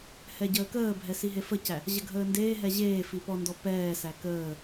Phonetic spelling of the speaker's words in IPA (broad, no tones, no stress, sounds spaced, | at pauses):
h ɛ ɟ əː k əː bʱ ɛ s i ɦ e f ə c æ | ʑ ə ɡʱ əː n d eː ɦ ɛ ʑ eː f i p ɔ n d ɔ p ɛː s æ k əː